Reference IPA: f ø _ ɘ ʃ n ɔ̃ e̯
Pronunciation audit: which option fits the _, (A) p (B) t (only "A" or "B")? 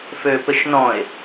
A